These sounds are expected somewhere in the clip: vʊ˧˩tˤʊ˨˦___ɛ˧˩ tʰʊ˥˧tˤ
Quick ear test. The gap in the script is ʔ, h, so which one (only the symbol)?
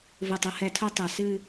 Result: h